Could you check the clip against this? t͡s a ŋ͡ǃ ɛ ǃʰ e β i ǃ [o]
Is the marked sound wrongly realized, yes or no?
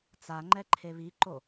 no